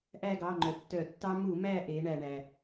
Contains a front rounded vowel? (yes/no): yes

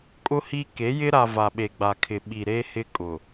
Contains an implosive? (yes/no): yes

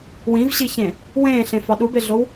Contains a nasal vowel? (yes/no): yes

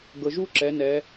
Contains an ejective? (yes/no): no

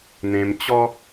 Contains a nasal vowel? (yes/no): yes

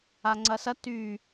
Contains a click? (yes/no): yes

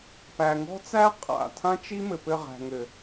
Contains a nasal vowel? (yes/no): yes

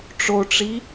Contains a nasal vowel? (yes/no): no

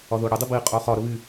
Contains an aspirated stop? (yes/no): no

